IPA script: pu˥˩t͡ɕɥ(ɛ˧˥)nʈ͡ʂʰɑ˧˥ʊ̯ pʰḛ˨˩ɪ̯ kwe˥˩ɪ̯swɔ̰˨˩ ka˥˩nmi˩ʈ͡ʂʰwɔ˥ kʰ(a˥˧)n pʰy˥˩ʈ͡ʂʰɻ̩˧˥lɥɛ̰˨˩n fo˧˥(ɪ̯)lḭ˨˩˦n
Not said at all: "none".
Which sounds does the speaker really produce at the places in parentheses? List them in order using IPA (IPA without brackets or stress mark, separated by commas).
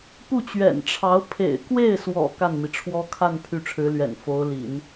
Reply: ɛ̰˨˩, a˥˧, ʊ̯